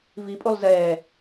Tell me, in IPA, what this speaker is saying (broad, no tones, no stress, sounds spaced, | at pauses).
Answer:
v i pʼ u lˠ z ɛː